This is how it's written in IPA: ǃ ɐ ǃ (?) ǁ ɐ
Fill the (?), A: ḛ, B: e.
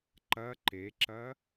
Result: B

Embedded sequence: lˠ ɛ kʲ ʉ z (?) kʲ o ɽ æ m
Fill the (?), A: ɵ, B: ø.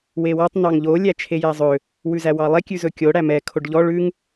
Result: A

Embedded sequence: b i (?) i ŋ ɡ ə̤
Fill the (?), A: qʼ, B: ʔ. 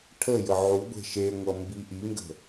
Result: B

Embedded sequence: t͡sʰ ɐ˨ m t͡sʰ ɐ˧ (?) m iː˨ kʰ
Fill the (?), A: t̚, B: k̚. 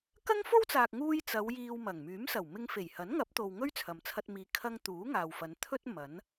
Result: A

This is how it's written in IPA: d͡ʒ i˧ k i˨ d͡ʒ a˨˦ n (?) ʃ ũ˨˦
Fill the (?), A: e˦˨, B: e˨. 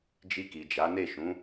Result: A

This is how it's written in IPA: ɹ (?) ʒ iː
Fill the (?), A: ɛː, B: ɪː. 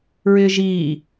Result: B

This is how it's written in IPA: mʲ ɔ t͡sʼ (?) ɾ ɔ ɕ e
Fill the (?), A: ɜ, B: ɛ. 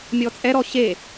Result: B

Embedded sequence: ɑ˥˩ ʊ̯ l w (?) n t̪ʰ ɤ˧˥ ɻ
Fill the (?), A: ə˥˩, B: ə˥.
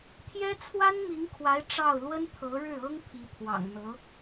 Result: B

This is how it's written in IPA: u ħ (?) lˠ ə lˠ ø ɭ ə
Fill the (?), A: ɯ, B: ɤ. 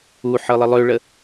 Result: B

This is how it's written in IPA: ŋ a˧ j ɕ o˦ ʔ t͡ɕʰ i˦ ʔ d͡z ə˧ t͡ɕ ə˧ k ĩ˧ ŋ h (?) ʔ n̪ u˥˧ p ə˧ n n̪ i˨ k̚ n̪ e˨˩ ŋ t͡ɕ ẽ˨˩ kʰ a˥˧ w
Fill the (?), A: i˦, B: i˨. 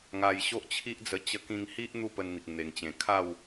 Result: A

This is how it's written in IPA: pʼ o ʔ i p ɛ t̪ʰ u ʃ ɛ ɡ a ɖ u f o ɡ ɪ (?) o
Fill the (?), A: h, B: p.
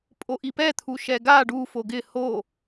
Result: A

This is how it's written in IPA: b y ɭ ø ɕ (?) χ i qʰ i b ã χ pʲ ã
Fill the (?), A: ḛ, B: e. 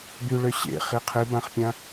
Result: A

